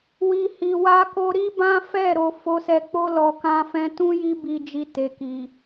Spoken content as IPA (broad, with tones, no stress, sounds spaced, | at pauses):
w i˨ h i˨ w a˧ k o˧ ɾ i˦ b ã˦ f ɛ˦˨ ɾ o˧ f o˧ s ɛ˧ k͡p o˦ l ɔ˧ k ã˦ f ɛ̃˦ t ũ˦ j i˦ b i˧ d͡ʒ i˧ t e˨ k i˨